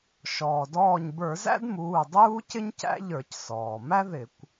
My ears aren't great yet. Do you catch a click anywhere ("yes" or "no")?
no